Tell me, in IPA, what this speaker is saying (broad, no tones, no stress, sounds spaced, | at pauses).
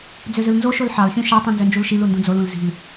d͡z ø z ɯ l n z o ʃ o l ħ ɑ l xʲ ũ ʃ ɑ tˤ ĩ n z ø n d͡ʒ u l ʃ i l u n d ũ d͡z o l ũ l z i̤ l